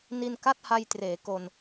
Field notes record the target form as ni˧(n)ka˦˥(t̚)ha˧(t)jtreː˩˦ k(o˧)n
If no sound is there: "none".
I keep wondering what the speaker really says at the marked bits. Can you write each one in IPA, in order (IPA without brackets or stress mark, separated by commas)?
n, t̚, none, o˧